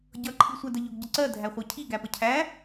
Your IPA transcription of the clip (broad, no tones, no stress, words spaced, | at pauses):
ɟʌ ǃʰisʷædəʎʊɡ ɟəǀɜ dʱæχʷɜcʰi ɡæpəcʰæ